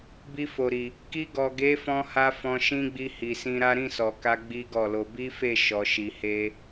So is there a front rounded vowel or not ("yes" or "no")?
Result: no